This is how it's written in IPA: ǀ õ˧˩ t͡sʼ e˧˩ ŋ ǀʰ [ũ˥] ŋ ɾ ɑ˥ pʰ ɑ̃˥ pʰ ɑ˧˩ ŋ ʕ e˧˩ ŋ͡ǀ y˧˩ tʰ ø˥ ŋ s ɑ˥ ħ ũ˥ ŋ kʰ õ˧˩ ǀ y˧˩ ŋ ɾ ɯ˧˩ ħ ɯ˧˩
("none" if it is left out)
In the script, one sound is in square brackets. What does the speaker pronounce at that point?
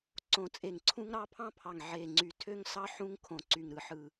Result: ũ˥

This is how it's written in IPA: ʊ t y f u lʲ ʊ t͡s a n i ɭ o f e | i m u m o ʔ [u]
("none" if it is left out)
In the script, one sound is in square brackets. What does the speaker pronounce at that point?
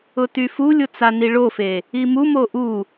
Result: u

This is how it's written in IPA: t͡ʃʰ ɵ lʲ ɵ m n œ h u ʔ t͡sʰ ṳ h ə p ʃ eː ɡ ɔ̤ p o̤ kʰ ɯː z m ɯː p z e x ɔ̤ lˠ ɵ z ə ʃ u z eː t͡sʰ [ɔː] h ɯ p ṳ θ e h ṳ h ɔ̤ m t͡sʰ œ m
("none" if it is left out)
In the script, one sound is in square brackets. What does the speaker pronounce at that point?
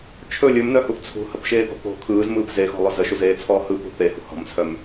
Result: ɔː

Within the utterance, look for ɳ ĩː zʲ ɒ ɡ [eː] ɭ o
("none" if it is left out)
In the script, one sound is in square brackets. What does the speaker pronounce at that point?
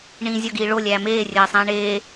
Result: iː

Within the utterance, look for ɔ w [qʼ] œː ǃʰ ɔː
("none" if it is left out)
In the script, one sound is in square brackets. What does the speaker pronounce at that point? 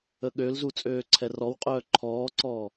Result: qʼ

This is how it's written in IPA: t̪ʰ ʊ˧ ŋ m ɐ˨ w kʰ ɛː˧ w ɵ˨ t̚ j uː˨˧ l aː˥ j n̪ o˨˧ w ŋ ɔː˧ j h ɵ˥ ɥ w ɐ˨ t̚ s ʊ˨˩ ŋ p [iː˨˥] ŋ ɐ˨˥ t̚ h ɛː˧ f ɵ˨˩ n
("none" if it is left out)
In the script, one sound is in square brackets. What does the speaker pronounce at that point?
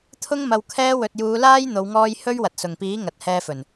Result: iː˨˥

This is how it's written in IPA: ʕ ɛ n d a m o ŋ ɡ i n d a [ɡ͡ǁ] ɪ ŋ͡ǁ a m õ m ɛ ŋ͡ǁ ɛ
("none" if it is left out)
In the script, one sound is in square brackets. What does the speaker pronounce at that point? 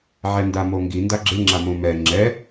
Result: ɡ͡ǁ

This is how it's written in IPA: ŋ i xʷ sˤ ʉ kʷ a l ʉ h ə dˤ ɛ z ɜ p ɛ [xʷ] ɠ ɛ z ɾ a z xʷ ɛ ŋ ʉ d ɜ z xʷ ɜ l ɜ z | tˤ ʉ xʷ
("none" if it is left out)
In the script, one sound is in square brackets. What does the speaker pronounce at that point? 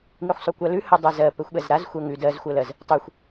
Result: xʷ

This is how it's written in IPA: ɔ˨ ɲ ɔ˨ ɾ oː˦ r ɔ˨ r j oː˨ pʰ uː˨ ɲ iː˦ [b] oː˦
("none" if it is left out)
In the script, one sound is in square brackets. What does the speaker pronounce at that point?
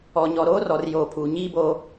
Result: b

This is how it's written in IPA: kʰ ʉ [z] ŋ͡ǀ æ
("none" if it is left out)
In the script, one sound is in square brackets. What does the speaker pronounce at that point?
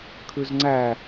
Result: z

